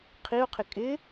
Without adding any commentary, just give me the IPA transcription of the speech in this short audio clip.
qʰiʊ̯qʰɪ kʼɪ

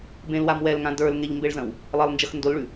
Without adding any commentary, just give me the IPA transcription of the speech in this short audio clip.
bẽlwam wɛlŋã də˞lŋeʎmbeɭzɐ̃w | lˠɐlˠnd͡ʒɐx ndolɭʉ

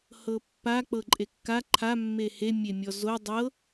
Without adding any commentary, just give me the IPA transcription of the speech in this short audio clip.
hɤpːa k͡pɤǃʼekːa ǃʰa mːehe mʲemʲɔzo dˤɤ

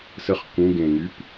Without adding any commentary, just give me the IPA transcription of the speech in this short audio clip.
səχ kũɡẽŋyp

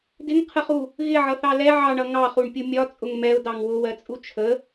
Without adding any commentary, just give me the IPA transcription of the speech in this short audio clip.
dɪŋqʰəχu | ɣɪʕʌθɑ lɛ ʕɑɳʌ ŋɑχuɳpʲu mʲɒt͡sʼʊŋ mɛʊ̯dɑŋ wʊwɜt͡sʼu t͡ʃʰə

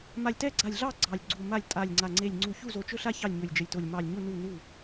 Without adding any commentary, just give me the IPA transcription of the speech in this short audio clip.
ma˧˩lʲtɛ˥˨ɡ͡ǀa˧˩lʲɮɑ˥˨ ɡ͡ǀɑ˧˩lʲɡ͡ǀu˧˩ma˥˨lʲ tʼa˧˩lʲŋ͡ǀa˧˩ ŋ͡ǀe˧˩lʲŋ͡ǀu˧˩çu˥˨ zo˧˩t͡ʃɵ˥˨ɬa˥˨ çɑ˥˨lʲɲɵ˧˩lʲd͡ʒə˧˩lʲto˧˩lʲ mɑ˧˩lʲɲu˥˨ nu˥˨nu˥˨

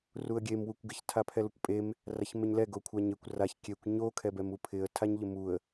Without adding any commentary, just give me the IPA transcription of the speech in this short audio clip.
ruə̯ɡʲem wukʷɡɪç tʰapʰɛlʊkʷpʼem | raçmeɲlɛ ɡokʷʰaɲekʷ raç kʲekʷ ɲo kʰɛbɛmupʰɪə̯ tʰaɲʎɪmuə̯

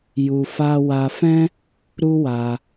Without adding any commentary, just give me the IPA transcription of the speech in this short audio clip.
ju˧fa˦ wa˧fɛ̃˦ | ɾu˦wa˧

